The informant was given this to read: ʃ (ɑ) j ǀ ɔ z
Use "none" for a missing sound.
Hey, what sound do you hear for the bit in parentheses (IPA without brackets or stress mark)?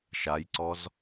a